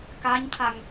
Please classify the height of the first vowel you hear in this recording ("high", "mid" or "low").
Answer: low